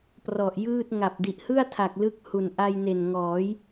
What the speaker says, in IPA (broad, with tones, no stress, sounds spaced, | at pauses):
p r ɔ˨˩ ʔ j ɯː˥˩ t̚ ŋ a˨˩ p̚ d i˨˩ ʔ h ɯ˥˩ a̯ tʰ a˨˩ k̚ l ɯ˦˥ k̚ h u˨˩ n ʔ a˧ j n e˨˩ n ŋ ɔː˩˦ j